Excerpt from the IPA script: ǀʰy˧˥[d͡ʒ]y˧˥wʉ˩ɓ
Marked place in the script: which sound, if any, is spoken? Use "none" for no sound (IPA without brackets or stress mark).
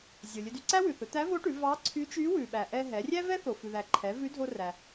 t͡ʃ